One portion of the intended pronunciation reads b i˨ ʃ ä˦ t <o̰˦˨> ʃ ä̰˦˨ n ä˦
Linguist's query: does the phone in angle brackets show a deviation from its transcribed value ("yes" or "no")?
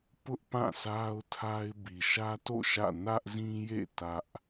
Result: no